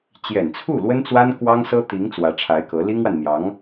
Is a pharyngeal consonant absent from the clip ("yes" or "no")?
yes